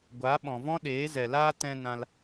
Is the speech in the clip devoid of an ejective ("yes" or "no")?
yes